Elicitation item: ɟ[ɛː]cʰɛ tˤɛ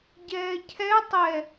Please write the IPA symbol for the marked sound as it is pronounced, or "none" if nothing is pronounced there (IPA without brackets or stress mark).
ɛː